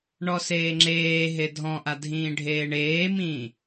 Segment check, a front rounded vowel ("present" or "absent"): absent